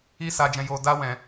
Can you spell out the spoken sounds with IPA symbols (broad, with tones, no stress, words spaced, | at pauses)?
i˦sa˧d͡ʒɛ̃˧ jo˧da˦ wɛ̃˧